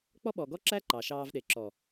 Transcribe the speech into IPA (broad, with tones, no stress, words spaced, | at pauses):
k͡pɔ˦ɓɔ˨ ɡɔ˦ǁæ˦ ǃɑ˨ʃɑː˧v ɗe˨ǁɔ˨